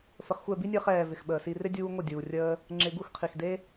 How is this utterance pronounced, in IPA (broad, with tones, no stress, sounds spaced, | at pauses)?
f ə˨ χ xʷ ɛ˦˨ b i˦ nʲ əː˧ χ ɛː˨ v ɪ˨ x ɓ əː˨ s i˧ r ɪ˦ dʲ uː˧ ŋʷ ə˦˨ dʲ uː˨ rʲ əː˧ | ŋ͡ǁ ɪ˧ ɡ u˦ x qʰ i˨ x d e˦